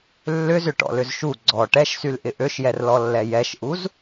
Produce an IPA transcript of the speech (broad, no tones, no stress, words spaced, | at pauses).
lːʏzʏʈɔ̰lʏz ʃu ɡ͡ǀɔ ʈɛʃsylʔɪ ʔøʃjɛrlɔlːɛ jɛʃʔuz